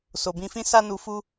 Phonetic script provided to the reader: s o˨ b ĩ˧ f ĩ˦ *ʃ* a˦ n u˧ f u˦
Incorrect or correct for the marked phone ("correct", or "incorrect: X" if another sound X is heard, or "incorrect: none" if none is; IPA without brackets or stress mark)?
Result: incorrect: s